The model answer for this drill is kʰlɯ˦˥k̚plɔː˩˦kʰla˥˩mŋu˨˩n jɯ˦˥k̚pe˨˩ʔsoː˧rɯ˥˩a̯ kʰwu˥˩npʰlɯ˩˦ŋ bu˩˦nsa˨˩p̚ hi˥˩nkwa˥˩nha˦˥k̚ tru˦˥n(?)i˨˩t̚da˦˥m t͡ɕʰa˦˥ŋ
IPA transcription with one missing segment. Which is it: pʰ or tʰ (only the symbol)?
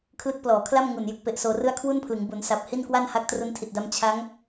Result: tʰ